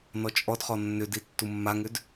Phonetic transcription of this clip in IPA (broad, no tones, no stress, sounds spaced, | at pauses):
n ɔ t͡ʃʼ ɔ d χ ɔ nː ʏ d i tː u mː a ŋ ʏ d